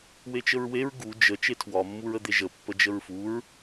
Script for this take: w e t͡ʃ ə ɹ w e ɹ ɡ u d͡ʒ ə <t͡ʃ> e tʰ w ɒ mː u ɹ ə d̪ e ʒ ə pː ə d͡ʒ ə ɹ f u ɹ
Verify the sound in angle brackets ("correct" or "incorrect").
correct